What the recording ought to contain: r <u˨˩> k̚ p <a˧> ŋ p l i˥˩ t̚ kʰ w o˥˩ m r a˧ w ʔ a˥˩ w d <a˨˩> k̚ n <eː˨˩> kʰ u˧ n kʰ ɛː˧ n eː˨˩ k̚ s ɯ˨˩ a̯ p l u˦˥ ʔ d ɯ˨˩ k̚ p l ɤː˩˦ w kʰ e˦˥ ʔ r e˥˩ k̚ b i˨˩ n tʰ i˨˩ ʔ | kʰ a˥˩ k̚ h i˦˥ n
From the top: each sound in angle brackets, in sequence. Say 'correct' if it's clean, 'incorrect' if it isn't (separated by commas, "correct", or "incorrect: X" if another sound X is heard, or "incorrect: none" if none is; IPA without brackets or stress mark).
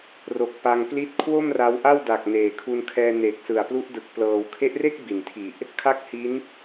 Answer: incorrect: o˨˩, correct, correct, correct